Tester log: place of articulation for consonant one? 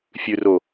labial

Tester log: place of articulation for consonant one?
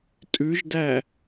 alveolar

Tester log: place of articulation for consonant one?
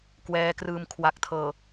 velar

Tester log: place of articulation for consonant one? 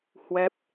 glottal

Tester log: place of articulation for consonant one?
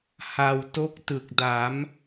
glottal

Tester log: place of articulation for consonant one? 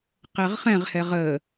uvular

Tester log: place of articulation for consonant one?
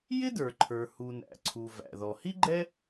palatal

